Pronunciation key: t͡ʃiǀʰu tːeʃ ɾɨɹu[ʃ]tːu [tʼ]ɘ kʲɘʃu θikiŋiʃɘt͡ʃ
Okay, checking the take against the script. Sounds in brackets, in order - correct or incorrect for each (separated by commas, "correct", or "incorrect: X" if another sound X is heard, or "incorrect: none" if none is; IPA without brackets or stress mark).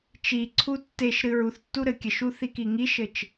incorrect: θ, incorrect: ɾ